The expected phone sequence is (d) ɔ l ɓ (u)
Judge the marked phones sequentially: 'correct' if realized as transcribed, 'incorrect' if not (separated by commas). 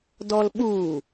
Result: correct, correct